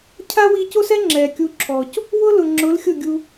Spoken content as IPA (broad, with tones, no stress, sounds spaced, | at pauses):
cʰ a˦ w i˧ c o˦ s ɛ˦ ŋ͡ǁ ɛ˨ kʲ u˧ ǁʰ ɔ˨ c | w ʊ˦ l ʊ˨ ŋ͡ǁ ʊ˨˦ l xʲ ʊ˦˨ ɡʲ u˧